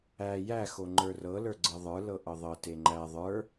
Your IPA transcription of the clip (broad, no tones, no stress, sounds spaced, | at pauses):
æ j æ x o ŋ͡ǃ ə˞ r ɤ l ə˞ ɡ͡ǀ ɤ ðˤ ə˞ l ɤ ʔ ɤ ðˤ ɤ t e ŋ͡ǃ æ ðˤ ə˞